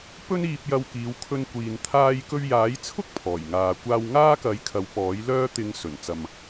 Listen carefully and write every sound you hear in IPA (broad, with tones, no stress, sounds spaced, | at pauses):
p ɵ˥ n iː˧ p̚ j ɐ˧ w k iː˨˧ w kʰ ɵ˧ n kʷ iː˨ n t̪ʰ aː˧ j k ɵ˧ ɥ j aː˨˥ j t͡sʰ ʊ˥ k̚ pʰ ɔː˨˩ j ŋ aː˨ kʷ aː˧ w ŋ aː˥ k ɐ˨˥ j kʰ ɐ˨˧ w p ɔː˨˥ j l œː˥ t̪ ɪ˧ ŋ s ɵ˨˩ n t͡s ɐ˨ m